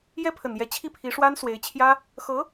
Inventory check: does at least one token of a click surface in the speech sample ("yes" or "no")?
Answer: no